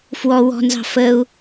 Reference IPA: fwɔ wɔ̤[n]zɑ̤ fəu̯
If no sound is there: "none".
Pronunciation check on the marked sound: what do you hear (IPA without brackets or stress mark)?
n